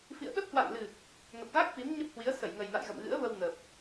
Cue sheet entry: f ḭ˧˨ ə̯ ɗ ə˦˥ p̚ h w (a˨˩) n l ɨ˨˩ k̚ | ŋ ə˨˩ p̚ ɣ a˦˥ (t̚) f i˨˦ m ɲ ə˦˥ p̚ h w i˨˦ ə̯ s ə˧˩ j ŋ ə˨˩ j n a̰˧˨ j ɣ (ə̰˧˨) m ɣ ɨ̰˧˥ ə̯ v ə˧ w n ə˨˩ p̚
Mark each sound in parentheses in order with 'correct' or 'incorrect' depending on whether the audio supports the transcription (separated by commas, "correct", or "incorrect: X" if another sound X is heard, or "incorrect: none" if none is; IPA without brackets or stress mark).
incorrect: a̰˧˨, incorrect: k̚, correct